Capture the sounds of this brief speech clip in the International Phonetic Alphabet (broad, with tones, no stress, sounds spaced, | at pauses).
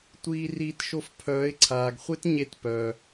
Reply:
tʷ iː˧ r iː˧ t ʃ o˧ f pʰ œː˨˦ ɪ̯ ǀʰ aː˨ ɡ χʷ e˦ t ɲ e˧ t p œ˨